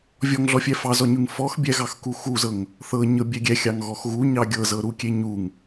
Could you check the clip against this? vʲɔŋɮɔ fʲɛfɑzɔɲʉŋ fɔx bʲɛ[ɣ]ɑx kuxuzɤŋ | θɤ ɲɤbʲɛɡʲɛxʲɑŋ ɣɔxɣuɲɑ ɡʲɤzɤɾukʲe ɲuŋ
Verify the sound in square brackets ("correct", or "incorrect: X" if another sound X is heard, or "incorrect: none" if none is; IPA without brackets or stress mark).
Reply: correct